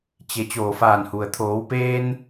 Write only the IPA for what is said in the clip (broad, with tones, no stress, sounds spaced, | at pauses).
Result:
t͡ɕ e˩˧ t͡ɕ oː˧˩ f aː˧˩ n h u˩ ə̯ t̪ʰ oː˩˧ w p eː˧ n